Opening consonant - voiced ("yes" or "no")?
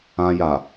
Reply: yes